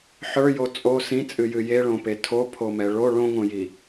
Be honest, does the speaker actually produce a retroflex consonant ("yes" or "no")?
yes